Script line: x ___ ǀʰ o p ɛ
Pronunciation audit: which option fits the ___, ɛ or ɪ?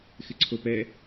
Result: ɪ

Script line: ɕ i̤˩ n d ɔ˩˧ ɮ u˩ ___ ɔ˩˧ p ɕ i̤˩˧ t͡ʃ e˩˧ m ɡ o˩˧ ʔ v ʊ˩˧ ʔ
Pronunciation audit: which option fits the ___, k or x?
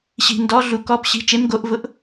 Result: k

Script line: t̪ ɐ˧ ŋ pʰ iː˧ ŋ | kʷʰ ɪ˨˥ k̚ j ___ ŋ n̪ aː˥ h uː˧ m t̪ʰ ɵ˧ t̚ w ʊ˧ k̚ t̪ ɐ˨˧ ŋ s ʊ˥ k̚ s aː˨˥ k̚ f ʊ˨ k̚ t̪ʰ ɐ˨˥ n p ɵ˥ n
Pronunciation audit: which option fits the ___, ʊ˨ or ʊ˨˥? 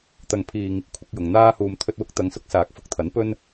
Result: ʊ˨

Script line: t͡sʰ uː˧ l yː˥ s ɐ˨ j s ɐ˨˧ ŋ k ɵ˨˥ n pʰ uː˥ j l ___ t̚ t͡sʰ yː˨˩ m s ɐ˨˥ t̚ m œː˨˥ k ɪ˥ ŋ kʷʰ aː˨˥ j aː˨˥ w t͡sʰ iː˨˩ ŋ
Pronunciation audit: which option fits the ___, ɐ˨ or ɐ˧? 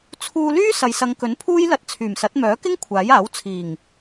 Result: ɐ˧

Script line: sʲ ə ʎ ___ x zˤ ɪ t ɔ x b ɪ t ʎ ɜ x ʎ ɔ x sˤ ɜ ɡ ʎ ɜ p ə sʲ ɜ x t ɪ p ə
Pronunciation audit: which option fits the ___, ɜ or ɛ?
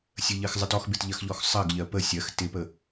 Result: ɜ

